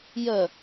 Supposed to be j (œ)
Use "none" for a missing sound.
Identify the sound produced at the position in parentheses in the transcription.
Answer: œ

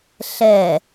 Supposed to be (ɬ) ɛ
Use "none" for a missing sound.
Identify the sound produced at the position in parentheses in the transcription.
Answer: ɬ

